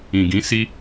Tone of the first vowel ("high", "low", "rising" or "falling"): low